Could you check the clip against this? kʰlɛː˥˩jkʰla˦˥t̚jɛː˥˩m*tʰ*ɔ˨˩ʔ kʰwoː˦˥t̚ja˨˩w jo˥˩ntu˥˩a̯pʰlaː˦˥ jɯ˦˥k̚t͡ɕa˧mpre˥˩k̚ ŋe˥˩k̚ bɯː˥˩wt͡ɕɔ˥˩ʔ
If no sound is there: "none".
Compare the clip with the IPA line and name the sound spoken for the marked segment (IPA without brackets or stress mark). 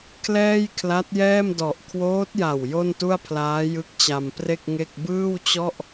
d